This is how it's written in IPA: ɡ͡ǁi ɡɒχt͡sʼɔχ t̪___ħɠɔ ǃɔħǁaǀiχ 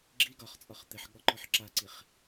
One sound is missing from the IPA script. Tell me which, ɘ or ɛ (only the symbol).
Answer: ɘ